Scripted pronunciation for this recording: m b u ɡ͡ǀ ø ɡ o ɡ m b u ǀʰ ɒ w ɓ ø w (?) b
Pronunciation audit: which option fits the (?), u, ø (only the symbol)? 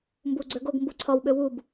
u